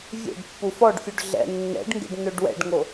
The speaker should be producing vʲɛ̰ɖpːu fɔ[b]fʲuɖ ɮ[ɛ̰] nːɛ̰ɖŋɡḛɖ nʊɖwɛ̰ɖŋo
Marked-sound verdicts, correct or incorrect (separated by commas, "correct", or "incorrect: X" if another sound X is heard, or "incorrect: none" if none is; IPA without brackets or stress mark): incorrect: ɖ, correct